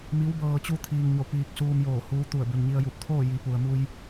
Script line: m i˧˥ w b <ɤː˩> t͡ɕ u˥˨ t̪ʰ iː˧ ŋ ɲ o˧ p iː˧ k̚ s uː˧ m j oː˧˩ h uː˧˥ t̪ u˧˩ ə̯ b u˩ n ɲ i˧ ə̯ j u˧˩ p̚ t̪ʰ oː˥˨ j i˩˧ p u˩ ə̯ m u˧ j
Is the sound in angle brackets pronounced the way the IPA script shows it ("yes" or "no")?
no